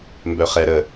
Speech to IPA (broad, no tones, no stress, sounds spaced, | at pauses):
m b œ χ ɛ ɾ ə